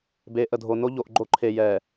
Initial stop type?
plain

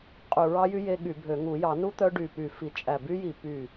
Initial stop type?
ejective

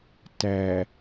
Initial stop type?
plain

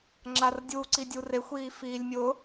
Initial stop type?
click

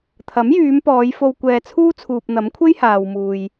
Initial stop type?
aspirated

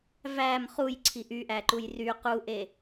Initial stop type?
click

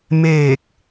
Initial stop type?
plain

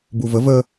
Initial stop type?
plain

